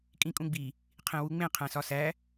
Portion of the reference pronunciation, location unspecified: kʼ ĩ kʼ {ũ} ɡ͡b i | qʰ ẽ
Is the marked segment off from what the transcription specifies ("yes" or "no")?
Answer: no